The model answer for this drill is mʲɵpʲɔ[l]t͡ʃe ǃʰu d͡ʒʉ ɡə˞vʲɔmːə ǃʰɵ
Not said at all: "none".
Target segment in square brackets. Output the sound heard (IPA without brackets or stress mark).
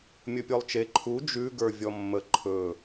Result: lˠ